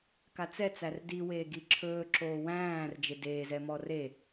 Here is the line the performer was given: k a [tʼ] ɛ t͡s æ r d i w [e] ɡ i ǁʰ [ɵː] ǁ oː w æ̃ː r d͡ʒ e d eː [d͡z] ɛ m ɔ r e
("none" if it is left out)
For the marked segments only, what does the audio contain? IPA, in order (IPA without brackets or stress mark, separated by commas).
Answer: t͡s, eː, ɵː, z